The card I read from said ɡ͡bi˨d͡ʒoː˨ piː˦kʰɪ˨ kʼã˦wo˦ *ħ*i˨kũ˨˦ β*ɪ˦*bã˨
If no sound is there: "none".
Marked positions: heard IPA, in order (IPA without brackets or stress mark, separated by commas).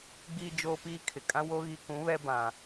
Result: ɣ, ɛ˦